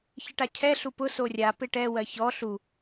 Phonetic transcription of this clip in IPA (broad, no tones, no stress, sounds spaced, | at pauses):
ç ɪ ʈ a cʰ ɛ ɬ u p ʊ s o rʲ a p ɪ ʈ ɛ w ɜ ç ɔ ɬ u